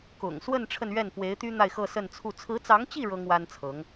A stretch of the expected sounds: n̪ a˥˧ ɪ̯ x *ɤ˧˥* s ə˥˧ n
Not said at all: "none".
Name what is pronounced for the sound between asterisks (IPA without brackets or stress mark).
ɤ˥˧